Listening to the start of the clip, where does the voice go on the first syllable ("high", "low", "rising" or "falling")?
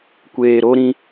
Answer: low